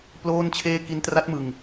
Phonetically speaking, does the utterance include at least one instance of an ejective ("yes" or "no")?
no